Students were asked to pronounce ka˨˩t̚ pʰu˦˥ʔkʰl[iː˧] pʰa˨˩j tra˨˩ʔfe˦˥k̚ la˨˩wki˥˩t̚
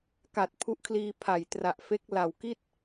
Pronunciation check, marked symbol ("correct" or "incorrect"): correct